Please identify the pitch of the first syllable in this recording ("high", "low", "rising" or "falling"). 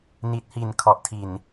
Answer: low